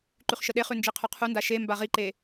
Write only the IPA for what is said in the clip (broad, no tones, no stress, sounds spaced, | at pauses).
ǃ ʉ χ ʃ ə ɗ e χ ʉ n d͡ʒ i qʰ ʉ qʰ u n d a ʃ e m b a ʁ i ǃ e